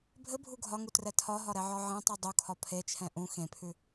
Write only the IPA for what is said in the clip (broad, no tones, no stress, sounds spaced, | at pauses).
bʱ ɘ bʱ u ɡʱ ɒ ŋ u t r ɛ tʰ ɒ ɦ ɒ ɾ ɛ ʕ ɒ ʕ ẽ tˤ u dˤ u kʰ ɒ pʰ e t͡ʃʰ ɛ̃ ʔ ũ x ẽ pʰ ʉ